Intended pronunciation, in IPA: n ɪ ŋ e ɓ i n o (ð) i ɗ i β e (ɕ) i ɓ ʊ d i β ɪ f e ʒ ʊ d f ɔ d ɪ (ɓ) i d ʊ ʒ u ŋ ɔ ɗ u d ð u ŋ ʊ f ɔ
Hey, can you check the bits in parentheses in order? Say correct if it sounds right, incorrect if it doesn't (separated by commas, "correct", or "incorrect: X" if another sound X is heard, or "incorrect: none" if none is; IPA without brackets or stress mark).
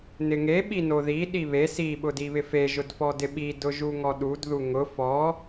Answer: correct, incorrect: s, correct